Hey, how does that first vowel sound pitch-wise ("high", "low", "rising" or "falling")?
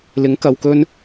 rising